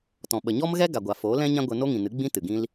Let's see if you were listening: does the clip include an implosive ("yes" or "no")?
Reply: yes